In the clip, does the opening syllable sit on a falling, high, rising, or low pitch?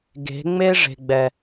rising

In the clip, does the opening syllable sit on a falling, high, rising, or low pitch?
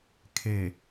low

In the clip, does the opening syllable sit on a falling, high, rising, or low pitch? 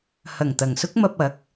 low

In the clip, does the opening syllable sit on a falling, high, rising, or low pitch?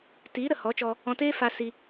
rising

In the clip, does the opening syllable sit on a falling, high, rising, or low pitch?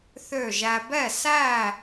falling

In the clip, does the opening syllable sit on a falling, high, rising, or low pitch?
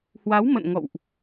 rising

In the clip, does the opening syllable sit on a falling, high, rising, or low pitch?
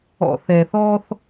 low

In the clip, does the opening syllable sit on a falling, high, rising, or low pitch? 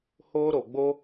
high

